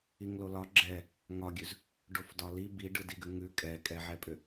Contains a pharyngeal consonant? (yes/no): yes